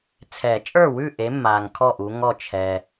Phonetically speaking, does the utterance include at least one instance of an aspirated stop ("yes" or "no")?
yes